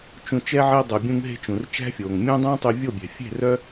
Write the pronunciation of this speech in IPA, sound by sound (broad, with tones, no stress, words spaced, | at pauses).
t͡ʃũ˧t͡ʃɛ˦ʕe˦ dˤu˨bʲũ˧ŋɦe̤˧ t͡ʃũ˨r t͡ʃæ̤˦fʲoː˨ŋ mʲũː˦dˤũː˦ tˤy˧vʲo˦˨bʲɛ̤˨ fʲe̤˦˨rœ˦